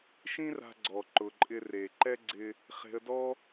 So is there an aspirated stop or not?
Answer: no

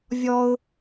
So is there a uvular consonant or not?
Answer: no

